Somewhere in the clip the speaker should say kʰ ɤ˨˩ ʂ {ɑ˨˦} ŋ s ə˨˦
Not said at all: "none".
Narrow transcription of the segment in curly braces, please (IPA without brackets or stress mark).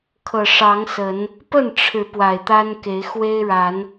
ɑ˨˦